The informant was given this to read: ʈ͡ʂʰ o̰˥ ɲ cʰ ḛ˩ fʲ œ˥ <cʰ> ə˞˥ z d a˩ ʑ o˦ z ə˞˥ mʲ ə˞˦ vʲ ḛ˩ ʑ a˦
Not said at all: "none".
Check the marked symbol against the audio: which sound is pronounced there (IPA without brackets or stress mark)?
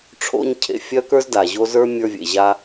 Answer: k